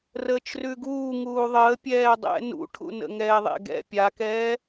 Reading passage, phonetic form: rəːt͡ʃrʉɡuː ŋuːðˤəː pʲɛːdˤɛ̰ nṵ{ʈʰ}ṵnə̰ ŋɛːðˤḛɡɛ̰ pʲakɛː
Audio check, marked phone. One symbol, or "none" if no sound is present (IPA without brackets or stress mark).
ʈʰ